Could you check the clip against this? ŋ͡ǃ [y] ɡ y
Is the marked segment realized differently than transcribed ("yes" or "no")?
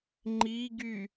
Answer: yes